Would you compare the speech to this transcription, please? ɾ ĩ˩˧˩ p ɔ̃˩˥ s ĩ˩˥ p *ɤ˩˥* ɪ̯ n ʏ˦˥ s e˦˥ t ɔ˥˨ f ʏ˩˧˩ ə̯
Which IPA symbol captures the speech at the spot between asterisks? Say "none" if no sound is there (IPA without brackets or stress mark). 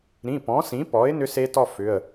ɔ˩˥